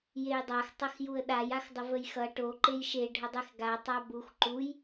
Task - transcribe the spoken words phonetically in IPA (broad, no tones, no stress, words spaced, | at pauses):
jejdˤax tˤʌxjuə̯ɗaj axdˤəvəjxʌ ʈo ǃejʃe ɖʱədˤexɡa tˤabux ǃuj